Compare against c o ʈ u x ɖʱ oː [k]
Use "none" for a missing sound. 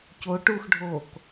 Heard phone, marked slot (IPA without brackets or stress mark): k